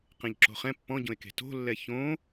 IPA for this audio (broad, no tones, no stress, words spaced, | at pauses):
qẽʎǁo̤χɛ̃ pːɔ̃ɟõe̯ke̤ to̤lːɛ çõ